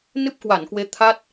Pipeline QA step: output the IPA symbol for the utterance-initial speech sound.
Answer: n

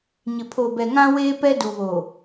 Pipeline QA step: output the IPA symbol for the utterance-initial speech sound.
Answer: ɲ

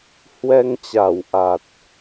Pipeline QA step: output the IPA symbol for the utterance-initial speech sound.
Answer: h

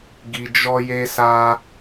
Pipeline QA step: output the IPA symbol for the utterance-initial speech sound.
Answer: ɡ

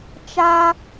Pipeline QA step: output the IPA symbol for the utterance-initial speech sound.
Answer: t͡ʃ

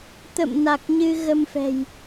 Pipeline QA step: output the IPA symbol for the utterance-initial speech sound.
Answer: t̪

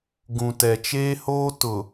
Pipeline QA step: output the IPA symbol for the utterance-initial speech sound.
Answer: ɡ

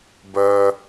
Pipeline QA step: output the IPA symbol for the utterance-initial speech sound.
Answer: b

